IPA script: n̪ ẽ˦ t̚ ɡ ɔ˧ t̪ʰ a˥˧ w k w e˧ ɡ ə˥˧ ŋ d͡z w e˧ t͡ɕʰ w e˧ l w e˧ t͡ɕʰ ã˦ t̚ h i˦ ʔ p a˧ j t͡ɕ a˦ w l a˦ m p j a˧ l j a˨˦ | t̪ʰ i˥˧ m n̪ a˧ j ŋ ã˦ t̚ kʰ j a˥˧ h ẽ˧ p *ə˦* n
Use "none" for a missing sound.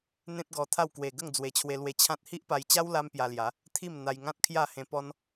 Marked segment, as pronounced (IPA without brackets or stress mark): ɔ˦